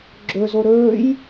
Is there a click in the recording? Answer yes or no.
yes